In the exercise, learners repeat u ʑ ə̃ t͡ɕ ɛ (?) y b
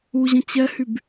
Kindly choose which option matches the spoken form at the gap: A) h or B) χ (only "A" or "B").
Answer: A